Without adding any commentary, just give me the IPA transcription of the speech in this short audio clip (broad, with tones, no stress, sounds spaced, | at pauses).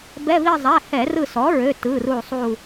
b ɛ˧˥˧ v i˥˧ zˤ ɛ˩˧˩ h ɛ˧˩˧ r ɯ˧˩ s ɔ˩˥ ɹ ø˩˧˩ t ɯ˩˧˩ r u˧˩ sˤ u˧˩